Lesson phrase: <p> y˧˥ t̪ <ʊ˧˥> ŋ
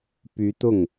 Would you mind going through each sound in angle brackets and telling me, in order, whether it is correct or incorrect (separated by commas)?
correct, incorrect